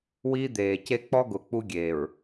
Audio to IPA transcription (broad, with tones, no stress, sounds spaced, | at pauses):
w iː˦ d̪ eː˨ c e˦ k͡p ɔ˦ ɡ ʊ˨ k͡p u˦ ɡʲ eː˨ ɹ